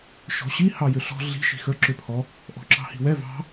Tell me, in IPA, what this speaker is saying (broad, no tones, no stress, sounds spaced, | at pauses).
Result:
ʃ ɔ̤ ɕ i h ɑ j ʏ ɬ ɔ̤ ɮ i̤ ʃ i̤ x ə˞ ǁ ʏ pʰ ɔ | ʔ ɔ̤ ǁ ɑ̤ h i̤ w ɛ v ɑ̤